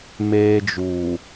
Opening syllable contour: high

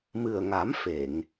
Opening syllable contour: low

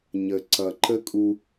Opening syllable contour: low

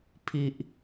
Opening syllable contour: low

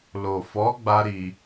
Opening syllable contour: low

